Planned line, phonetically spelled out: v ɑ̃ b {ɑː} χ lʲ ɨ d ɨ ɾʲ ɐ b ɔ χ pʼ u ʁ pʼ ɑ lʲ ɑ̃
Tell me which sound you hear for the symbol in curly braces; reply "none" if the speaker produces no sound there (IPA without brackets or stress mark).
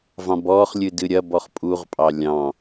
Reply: ɔː